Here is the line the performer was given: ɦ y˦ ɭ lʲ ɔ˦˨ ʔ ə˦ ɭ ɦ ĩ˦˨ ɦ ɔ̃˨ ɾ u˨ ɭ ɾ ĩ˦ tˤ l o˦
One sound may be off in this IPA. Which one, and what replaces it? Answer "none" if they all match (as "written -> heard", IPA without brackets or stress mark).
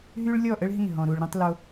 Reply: none